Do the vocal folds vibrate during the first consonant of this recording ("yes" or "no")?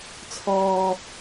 no